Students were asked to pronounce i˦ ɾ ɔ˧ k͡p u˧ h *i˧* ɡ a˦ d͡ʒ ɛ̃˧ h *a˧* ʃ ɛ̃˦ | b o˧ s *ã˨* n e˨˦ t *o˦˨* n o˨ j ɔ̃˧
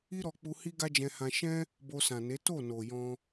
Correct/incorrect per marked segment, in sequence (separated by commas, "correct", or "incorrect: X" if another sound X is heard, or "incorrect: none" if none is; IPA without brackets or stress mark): incorrect: i˦, incorrect: ã˧, correct, correct